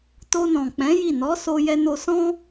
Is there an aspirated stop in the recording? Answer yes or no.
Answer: no